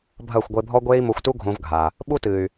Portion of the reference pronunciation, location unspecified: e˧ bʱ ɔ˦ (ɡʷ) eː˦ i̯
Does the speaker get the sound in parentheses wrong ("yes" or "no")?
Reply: no